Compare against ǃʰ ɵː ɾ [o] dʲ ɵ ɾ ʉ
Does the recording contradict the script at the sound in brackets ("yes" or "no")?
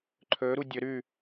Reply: yes